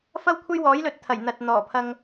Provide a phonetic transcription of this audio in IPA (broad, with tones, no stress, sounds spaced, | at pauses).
f ɐ˥ w kʷʰ ɐ˥ j w ɔː˨˥ j l ɵ˨˥ t̚ t̪ʰ ɐ˨˩ j n̪ ɐ˨ t̚ n̪ ɔː˨˩ pʰ ɐ˧ ŋ